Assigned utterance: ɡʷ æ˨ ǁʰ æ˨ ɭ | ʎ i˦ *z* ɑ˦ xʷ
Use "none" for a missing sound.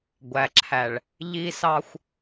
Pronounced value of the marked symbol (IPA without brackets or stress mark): s